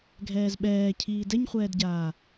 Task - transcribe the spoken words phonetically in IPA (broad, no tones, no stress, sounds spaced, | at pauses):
ɡʱ ɛː z ɓ ɛː cʰ iː d ɛ ɲ χʷ ɛː d ɟ aː